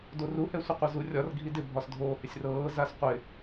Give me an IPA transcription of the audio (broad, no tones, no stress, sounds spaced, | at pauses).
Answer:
d o r u h ɛ sʷ ɪ qʷ ɤ z u rʲ ɒ r ɡʱ i d ɪ bʱ ɒ s dʱ oː h ɪ sʲ r ɤː z a s qʷ ɪ